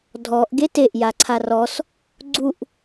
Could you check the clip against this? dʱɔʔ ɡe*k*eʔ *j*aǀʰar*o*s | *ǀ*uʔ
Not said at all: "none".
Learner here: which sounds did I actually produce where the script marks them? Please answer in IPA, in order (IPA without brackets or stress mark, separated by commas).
t, j, ɔ, ɡ͡ǀ